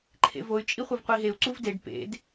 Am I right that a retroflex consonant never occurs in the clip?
no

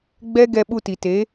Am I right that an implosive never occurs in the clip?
no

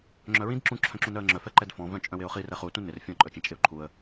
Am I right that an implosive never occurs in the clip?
yes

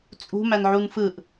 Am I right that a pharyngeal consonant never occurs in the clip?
no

